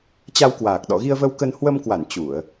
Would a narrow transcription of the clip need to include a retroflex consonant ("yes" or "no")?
no